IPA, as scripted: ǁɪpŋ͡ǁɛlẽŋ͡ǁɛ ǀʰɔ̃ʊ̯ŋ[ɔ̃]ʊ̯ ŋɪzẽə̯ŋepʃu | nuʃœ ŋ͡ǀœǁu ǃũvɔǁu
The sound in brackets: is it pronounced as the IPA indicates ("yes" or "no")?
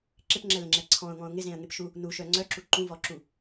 yes